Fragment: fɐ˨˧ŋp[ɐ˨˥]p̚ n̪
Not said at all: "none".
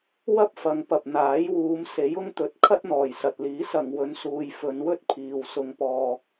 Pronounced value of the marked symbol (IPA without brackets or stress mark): ɐ˨